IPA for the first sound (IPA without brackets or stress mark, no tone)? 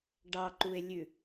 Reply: ɖ